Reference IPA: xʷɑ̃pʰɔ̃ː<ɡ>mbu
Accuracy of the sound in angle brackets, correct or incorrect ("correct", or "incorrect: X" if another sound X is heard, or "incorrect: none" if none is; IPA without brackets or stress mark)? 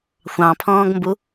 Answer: correct